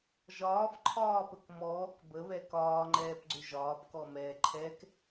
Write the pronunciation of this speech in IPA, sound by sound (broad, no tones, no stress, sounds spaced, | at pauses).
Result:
ʒ ɒː f ǃʰ ɒː p ə k m ɔː k b ə β ɛ k ɒː ŋ͡ǃ ɛː p ɡ͡ǀ ʏ ʒ ɒː p k ɔ m ɛː ǃʰ ɛ k